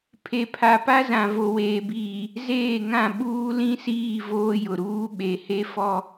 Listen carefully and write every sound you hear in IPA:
pʰ e˨ pʰ a˨ p a˦ z ã˨ v o˨ w eː˨ b iː˨ | z eː˦˨ ŋ ã˦˨ ɓ uː˦ l ĩ˦ s iː˦˨ v oː˦ j ʊ˨ ɾ uː˦ ɓ e˨ h e˦ f ɔ˦

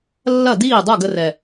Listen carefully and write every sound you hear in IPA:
lː ɐ˦˨ d iː˦˨ dˤ o˦˨ ɡ ə˧ r ɛ˨

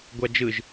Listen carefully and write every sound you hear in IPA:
ɡʷ a d͡ʒ ɯ ʒ

